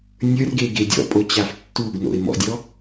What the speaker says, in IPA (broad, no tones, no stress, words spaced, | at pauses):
nʲə˞rɡe ɡedʲɔ̰pʼo t͡ɕaftːuɡno̰ɪ̯ mɔ̰dʲɔ